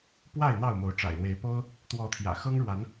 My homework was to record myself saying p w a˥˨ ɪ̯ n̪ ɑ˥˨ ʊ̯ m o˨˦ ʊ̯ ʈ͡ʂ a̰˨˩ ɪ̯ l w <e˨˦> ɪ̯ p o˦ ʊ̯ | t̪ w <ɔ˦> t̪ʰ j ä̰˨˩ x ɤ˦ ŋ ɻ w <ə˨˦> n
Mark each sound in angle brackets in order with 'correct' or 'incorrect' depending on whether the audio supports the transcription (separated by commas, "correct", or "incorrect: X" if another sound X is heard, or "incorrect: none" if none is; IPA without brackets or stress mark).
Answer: correct, incorrect: ɔ˨˦, incorrect: a˨˦